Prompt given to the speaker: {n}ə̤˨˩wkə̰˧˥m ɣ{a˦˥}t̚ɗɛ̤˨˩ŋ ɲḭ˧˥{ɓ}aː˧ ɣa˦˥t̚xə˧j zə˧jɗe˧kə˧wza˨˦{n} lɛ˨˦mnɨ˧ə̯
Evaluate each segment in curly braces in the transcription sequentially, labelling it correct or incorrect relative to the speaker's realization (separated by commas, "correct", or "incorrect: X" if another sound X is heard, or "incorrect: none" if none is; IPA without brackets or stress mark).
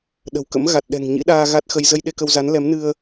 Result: incorrect: ɗ, incorrect: a˨˩, incorrect: ɗ, correct